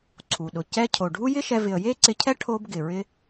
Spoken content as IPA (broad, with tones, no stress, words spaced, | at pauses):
ǀʰu˩ɗʊ˩ cɛ˧cʰo˩ ɖʱu˥jɪ˥ʃɛ˧ vɪ˩ə̯je˥ǀɪ˧cʰɛ˥ ʈʰo˧b ɡɪ˩ ɹɪ˧